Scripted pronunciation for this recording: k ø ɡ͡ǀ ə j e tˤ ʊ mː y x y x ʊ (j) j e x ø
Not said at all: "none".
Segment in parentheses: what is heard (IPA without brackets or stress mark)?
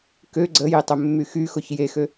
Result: ç